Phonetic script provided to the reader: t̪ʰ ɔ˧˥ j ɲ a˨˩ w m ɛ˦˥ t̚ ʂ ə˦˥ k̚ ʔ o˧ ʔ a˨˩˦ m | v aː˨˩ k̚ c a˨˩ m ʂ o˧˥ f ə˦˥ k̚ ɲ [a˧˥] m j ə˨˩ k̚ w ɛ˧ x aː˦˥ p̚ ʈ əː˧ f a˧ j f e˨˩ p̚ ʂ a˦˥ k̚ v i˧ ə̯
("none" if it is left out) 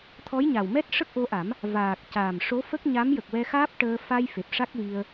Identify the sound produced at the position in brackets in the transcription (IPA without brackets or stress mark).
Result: a˧˥